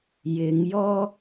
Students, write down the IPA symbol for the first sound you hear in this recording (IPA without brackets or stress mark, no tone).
j